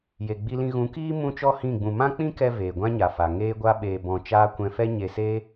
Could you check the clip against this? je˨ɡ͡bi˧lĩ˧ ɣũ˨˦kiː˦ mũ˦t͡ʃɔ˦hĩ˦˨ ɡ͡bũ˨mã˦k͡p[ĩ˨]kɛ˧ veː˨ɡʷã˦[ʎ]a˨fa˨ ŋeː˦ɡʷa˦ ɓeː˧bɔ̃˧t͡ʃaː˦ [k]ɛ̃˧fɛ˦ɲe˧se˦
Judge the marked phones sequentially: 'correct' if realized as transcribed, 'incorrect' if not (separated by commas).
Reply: incorrect, incorrect, incorrect